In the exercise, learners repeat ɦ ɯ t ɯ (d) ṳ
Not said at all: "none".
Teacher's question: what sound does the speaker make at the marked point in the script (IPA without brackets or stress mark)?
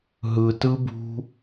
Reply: b